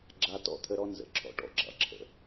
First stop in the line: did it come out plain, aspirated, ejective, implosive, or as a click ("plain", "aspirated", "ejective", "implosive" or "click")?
click